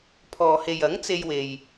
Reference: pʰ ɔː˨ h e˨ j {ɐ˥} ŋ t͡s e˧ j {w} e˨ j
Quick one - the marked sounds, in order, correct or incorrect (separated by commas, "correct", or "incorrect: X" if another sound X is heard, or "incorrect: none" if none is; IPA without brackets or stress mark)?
incorrect: ɐ˨˥, correct